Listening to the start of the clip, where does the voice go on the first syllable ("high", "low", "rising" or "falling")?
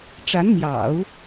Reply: rising